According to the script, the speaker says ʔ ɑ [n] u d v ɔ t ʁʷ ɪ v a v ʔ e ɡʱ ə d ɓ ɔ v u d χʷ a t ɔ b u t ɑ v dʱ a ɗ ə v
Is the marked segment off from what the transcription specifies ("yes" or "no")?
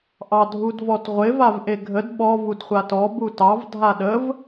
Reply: yes